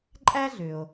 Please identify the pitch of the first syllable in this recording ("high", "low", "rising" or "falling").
high